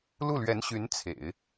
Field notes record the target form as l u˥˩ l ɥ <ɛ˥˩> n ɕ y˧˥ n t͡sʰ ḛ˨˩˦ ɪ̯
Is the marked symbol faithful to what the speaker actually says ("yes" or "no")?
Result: no